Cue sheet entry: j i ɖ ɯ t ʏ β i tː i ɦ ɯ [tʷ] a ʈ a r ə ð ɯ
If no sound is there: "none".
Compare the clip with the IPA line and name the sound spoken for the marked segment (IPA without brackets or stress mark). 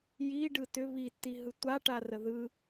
tʷ